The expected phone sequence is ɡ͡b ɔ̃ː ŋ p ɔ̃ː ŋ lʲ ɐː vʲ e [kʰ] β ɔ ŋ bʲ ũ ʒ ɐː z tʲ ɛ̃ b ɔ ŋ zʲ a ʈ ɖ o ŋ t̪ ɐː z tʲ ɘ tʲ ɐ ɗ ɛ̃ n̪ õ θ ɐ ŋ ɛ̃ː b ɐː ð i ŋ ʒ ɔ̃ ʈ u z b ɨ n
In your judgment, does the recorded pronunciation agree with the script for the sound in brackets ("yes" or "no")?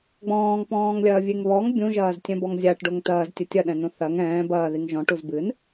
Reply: no